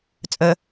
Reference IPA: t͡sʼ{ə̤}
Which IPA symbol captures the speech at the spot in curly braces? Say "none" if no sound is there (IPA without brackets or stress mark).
ə